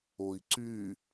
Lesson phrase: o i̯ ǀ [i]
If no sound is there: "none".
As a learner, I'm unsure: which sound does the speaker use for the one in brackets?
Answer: y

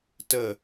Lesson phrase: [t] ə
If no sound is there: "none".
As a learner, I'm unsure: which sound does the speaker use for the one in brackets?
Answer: t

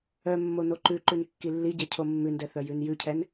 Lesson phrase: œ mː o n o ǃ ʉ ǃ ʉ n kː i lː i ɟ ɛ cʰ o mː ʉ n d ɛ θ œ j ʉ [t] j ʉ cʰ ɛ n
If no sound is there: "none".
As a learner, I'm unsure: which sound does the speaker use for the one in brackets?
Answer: n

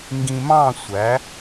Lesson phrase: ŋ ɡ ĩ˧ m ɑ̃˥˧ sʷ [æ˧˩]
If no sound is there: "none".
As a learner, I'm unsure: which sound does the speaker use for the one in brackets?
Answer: æ˩˧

